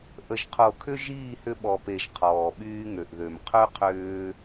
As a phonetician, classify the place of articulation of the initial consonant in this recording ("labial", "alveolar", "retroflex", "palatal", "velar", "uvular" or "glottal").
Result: glottal